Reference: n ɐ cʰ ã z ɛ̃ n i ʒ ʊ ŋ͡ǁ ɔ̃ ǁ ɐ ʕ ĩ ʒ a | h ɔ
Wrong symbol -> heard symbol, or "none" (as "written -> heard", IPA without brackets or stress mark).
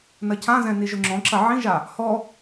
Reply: none